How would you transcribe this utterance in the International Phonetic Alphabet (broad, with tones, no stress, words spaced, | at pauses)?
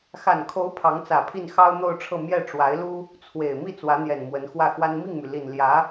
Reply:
xa˨˩nkʰo˧˥ʊ̯ pʰɑ˧˥ŋt͡sä˨˩pʰi˥˩n xɑ˥ʊ̯n̪o˥˧ʊ̯ʈ͡ʂʰɤ˥˧ mjɛ˥˩ʈ͡ʂwa˧˥ɪ̯lu˥ | t͡sʰwe˨˩ɪ̯ mi˥˩ t͡swä˧˥n̪jɛ˨˩nmwə˧˥n xwä˥˩xwa˥n mi˥˩ŋmy˩li˨˩n ljä˧˥